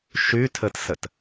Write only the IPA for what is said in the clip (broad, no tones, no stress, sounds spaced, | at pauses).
ʃ y tʰ ɘ t s ɘ t